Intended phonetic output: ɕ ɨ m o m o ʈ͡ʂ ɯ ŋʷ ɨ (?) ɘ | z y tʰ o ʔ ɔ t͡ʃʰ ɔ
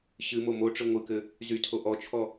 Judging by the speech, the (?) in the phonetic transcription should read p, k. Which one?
k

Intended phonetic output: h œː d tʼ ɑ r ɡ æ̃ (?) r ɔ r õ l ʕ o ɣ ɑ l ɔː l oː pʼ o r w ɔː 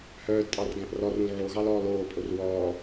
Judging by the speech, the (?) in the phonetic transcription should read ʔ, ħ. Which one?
ʔ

